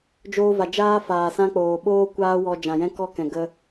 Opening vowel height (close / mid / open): mid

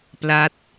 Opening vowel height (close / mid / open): open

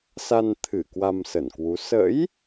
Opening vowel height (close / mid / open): open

